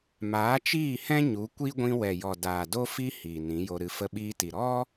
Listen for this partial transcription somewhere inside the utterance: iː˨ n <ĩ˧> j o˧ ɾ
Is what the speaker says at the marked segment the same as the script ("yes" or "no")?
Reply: no